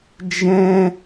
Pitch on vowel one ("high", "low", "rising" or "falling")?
high